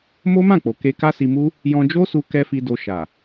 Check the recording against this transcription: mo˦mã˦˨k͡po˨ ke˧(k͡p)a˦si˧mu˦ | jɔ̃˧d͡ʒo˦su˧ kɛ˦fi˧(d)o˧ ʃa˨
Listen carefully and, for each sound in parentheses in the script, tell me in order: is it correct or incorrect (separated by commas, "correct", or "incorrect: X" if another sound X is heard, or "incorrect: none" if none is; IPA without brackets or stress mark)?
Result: incorrect: k, correct